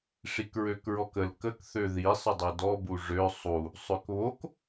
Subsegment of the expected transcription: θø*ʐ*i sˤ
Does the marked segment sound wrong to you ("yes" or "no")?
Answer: yes